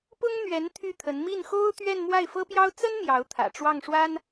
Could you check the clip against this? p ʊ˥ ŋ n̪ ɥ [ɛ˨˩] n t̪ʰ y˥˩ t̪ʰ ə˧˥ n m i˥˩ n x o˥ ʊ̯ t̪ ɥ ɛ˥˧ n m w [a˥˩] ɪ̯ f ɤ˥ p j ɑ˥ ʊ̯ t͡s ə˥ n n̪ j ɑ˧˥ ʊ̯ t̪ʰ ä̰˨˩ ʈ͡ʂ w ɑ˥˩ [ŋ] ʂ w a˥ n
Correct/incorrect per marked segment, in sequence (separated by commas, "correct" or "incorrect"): incorrect, correct, correct